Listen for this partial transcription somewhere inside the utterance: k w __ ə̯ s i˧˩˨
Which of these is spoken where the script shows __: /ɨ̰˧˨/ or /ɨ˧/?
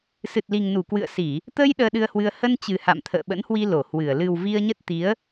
ɨ̰˧˨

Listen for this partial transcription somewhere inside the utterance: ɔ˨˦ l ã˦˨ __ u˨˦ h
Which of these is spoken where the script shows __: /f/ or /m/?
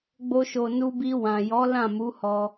m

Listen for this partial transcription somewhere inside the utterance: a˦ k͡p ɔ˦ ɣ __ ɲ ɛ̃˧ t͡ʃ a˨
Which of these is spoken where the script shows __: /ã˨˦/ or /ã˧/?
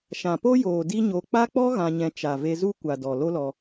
ã˧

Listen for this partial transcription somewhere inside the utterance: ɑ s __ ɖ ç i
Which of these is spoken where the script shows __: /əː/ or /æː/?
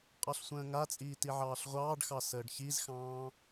əː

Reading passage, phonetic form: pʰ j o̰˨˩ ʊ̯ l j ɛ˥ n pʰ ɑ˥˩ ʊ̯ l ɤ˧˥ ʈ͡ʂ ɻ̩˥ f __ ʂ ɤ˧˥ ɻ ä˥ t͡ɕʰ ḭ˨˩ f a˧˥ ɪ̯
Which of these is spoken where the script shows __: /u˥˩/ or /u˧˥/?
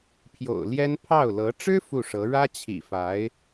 u˥˩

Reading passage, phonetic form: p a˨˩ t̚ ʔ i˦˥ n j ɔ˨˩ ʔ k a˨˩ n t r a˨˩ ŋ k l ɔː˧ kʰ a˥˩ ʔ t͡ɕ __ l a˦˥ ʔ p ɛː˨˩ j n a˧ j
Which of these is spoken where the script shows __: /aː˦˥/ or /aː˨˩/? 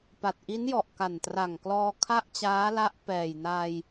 aː˦˥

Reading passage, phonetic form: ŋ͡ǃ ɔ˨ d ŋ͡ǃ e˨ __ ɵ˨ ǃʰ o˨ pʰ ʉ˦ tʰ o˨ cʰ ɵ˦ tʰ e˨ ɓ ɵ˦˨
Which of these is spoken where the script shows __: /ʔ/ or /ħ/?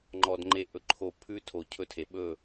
ʔ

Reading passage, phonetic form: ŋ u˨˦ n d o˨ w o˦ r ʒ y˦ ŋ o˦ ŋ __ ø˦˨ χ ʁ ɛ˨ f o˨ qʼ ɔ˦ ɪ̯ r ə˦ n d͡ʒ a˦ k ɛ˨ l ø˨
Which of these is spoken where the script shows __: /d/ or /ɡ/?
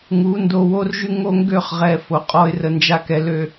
ɡ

